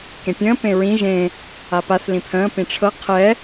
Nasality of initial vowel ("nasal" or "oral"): nasal